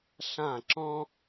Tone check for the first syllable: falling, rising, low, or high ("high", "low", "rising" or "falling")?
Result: falling